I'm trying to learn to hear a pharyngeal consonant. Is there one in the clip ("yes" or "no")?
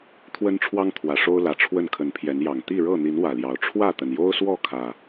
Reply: no